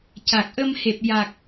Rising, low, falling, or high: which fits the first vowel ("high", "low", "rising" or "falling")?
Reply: low